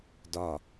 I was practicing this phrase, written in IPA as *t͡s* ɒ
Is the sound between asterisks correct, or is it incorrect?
incorrect